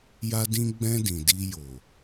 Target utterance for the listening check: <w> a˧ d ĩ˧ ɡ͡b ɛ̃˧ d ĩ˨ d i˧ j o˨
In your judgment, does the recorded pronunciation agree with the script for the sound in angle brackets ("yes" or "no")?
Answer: no